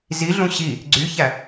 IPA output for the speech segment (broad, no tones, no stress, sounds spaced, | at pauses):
z i ɮ ũ ɕ i | ɡ͡ǀ y ç æ